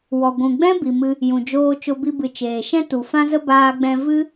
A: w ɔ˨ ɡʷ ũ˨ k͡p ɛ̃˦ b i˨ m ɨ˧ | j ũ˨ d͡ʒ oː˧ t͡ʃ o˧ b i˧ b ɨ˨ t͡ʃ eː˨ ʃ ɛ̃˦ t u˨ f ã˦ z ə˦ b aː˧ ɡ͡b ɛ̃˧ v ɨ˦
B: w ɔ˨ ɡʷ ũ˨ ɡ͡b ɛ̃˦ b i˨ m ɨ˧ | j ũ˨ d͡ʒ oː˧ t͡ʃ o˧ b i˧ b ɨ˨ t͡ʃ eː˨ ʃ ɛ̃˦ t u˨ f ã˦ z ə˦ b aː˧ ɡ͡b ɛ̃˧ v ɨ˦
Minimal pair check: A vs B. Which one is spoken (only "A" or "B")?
B